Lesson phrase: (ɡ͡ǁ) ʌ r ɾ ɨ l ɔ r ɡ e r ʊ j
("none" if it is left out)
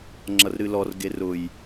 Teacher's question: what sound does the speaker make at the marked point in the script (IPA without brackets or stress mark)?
ŋ͡ǁ